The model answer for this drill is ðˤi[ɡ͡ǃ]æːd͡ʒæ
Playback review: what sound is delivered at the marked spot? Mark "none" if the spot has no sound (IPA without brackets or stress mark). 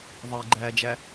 ɡ͡ǃ